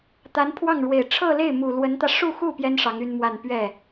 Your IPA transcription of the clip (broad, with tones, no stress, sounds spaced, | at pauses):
t̪ a˧˥ n pʰ w ɑ˥˩ ŋ ɻ w e˨˩ ɪ̯ ʈ͡ʂʰ ɤ˥˧ l e˥˩ ɪ̯ m u˨˩ l w ə˧˥ n t̪ ä˧ ʂ u˥˧ x u˥˩ p j ɛ˥ n ʂ ɑ˧˥ ŋ y˥ n m w a˥˧ n p ɥ ɛ˥˩